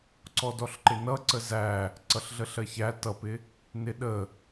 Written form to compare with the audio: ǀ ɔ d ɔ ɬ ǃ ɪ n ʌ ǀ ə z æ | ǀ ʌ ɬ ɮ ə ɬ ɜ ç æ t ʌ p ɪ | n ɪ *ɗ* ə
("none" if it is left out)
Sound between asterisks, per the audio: ɗ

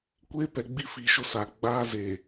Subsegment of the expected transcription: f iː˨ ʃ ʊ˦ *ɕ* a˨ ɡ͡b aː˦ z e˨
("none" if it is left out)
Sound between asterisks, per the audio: s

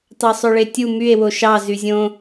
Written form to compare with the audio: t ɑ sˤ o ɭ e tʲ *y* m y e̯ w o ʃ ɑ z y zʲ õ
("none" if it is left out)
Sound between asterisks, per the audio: u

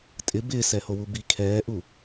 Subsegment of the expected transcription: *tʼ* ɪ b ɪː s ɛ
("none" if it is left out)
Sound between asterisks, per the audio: tʼ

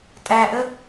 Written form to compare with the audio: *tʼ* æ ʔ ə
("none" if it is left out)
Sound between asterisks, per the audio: tʼ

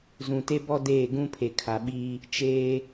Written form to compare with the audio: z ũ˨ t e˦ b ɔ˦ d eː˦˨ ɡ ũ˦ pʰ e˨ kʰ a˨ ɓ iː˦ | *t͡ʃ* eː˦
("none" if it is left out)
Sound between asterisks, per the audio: t͡ʃ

